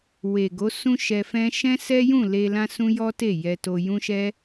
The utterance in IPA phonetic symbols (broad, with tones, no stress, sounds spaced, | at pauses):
w e˨ ɡ o˨˦ s ũ˦ ʃ ɛ˧ f ɛ̃˦ ʃ ɛ̃˦ s ɛ˦ j ũ˦˨ l e˧ l ã˦ s ũ˦ j ɔ˦ t e˦˨ j ɛ˧ t o˧ j ũ˦ ʃ ɛ˦